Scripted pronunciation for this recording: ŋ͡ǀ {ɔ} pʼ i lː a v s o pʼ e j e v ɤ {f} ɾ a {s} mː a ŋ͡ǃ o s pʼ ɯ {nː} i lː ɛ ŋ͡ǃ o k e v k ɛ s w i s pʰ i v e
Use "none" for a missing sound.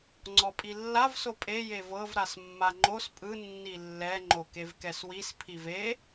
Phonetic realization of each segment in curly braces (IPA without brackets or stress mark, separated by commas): ɔ, v, s, nː